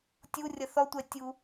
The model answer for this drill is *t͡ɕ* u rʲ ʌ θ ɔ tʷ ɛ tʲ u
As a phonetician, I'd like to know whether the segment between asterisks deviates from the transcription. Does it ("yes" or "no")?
yes